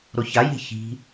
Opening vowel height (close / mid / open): mid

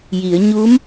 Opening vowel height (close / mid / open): close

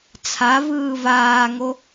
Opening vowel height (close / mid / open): open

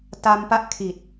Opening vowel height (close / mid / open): open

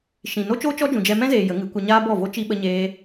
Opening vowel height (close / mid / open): close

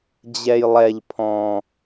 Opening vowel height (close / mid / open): mid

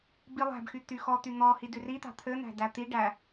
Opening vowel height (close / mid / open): close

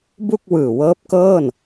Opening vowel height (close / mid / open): close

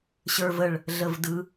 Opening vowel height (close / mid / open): mid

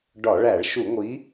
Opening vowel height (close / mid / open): open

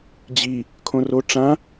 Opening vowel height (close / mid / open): close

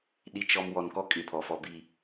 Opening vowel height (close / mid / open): close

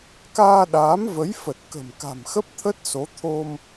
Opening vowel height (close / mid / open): open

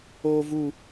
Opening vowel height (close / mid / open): mid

